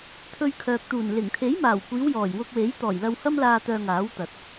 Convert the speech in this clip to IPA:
t̪ʰ ɵ˧ ɥ kʰ œː˨ k̚ t̪ uː˨˩ n l ɪ˨˩ ŋ t̪ʰ e˨˥ j m aː˨˩ w kʷ iː˨˧ w j ɔː˨˩ j w ʊ˧ k̚ w e˨˥ j t̪ ɔː˨˩ j l ɐ˧ w h ɐ˥ m l aː˧ t̪ œː˧ ŋ aː˨˥ w t̪ ɐ˨ t̚

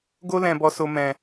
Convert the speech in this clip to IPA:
ɡ o˧ l ɛ̃˨ b ɔ˨ s o˨ m ɛ̃˨

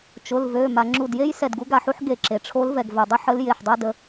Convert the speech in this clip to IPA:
t͡ʃ ʊ˩˧˩ l v ø˩˧˩ m a˩ ŋ͡ǁ u˧˩ d j e˥ j s ɛ˧˩ d ɡ u˧˥ ɡ a˧˩ ħ u˥ ħ ɡ e˧˩ ǁ e˩ ʈ͡ʂʰ o˧˥ l v ɛ˩ ɡ v œ˩ dˤ ʊ˥ ħ ə˧˥ l j e˩˧˩ ħ dˤ a˥ d ə˩˧˩

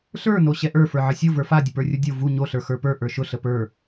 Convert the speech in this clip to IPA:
ɬ ə˞ n o ɕ ɛ ʔ ə˞ f ə˞ ʕ ə sʲ o v ə˞ f a dʲ ə p ə˞ rʲ u dʲ o v u ɲ o ɬ ə˞ x ə˞ p ə˞ ʔ ə˞ ʃ ʊ ɬ ə p ə˞

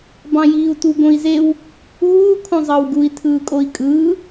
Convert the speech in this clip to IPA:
b ɑ̃ j iː u̯ t u ɡ õ i̯ z e w | uː kʰ õ zˤ ɑ w ɡ u i̯ tʰ ɯː kʼ o i̯ kʼ ɯː

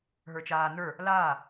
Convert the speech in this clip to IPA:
ɦ ə˞ t͡ʃ aː n ə˞ | l aː

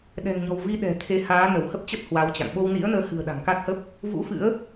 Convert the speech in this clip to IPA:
ɗ ɛ̤˨˩ ŋ ɲ ɔ̤˨˩ w v i˧ ɗ ɛ̤˨˩ t̪ʰ e˨˦ h aː˨˦ n ə˧˩ w h ə˦˥ p̚ t͡ɕ ə˦˥ t̚ h w a˨˦ w t͡ɕ a̰˧˨ ŋ ɓ o˧ w n ḭ˧˥ ə̯ n əː˨˦ h ɨ̤˨˩ ə̯ ɗ a̤˨˩ ŋ k a˦˥ t̚ h ə˦˥ p̚ | v ṵ˧˥ f ɨ̰˧˥ ə̯

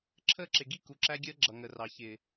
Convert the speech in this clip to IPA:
ǁʰ əː˦˨ ǁ ɪ˨ ɡ i˦ k u˨ ǁ æ˦ ɡʲ əː˦ ɡ͡ǁ ʌ˨ ŋ ə˨ r ɑ˨ ç ɪː˨

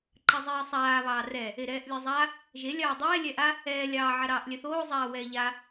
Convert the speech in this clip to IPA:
ǃ a zˤ ɛː sˤ aː β ɑː r ɛ | e ɾ ɛː ʔ lʲ e zˤ a | ʒ e lʲ ɑː dˤ ɛː lʲ ɛ ʔ a | ɛː lʲ ɑː ʕ a ɾ ɑː ʔ lʲ ɛ θ oː zˤ aː w ɛː ʎ a

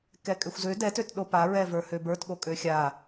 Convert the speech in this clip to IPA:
k ɛ kʼ ø xʷ z ø d ɛ t ø t ɗ o p a ɹ ɛ v ə˞ h ø b ə˞ t ɠ o kʼ ø xʲ a

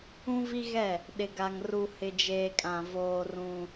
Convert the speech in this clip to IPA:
ũ˦ v i˦ ɣ ɛ˦˨ | ɗ ɪ˨ ɡ a˨ ŋ r u˨ h ɪ˨ d͡ʒ eː˨ kʼ ã˨ v oː˦ r ũ˦

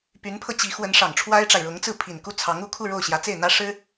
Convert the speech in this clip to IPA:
p y˧˥ n pʰ ɤ˧ t͡ɕ i˧˥ x w ə˧˥ n ʂ ɑ˨˩ ŋ ʈ͡ʂʰ w a˥ ɪ̯ ʈ͡ʂ a˨ ɪ̯ ɻ ʊ˧˥ ŋ t͡s ɹ̩˥˩ pʰ i˨˩ n k u˥˩ t͡sʰ ɑ˧˥ ŋ u˥˧ kʰ u˥˧ ɻ o˥˩ ʊ̯ ɕ j ä˧˥ t͡s e˥˩ ɪ̯ n̪ ä˥ ʂ ɻ̩˥

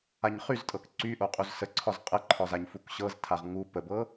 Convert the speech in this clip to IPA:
a ɲ χ y z tʼ ɤ k ǀ y ʔ o qʼ u z s ə ǀʰ ɒ z qʼ ə ǃʰ ɒ z a ɲ f u k ɕ ɤ z tʰ a ʁ ŋ u p ə b ɤ

